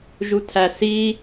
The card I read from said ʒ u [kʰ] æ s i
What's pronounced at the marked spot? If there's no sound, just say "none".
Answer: tʰ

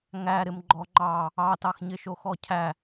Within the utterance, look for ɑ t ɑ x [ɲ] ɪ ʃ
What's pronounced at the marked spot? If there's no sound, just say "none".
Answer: ɲ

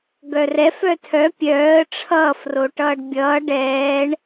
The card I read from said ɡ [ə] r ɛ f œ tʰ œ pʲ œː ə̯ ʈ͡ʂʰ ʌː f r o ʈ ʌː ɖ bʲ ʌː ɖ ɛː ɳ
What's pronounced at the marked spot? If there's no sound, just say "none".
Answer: œ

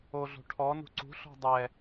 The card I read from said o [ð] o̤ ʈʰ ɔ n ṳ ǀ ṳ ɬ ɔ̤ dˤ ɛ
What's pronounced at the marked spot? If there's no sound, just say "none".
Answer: ɮ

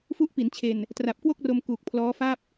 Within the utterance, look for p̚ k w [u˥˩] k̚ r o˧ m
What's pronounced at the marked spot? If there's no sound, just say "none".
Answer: o˥˩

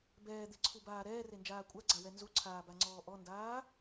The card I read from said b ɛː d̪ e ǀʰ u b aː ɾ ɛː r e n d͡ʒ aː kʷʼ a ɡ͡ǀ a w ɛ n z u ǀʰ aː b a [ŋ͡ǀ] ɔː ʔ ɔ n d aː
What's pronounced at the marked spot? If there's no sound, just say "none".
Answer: ŋ͡ǀ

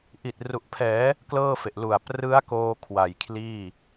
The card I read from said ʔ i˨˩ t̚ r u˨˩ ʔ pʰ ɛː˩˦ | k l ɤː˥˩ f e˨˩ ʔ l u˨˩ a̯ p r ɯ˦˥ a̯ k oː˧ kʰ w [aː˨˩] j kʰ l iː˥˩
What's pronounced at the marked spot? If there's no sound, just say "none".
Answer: a˨˩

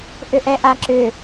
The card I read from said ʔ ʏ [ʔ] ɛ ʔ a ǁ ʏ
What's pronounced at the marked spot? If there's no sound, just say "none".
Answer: ʔ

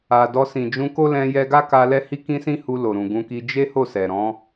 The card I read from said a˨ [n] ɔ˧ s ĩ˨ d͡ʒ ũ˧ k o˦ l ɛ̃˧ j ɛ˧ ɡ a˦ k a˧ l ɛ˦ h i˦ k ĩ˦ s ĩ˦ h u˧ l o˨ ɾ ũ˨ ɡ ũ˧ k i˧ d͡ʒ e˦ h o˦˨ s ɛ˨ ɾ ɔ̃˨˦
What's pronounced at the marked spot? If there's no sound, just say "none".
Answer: d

